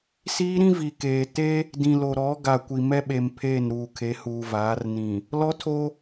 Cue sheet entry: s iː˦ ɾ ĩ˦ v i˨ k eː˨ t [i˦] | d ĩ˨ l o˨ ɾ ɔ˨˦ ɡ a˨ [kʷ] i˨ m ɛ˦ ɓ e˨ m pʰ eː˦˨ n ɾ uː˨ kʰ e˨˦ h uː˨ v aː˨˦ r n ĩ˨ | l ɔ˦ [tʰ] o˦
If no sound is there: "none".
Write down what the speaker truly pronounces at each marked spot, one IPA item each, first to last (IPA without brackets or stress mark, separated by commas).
e˦, kʷ, tʰ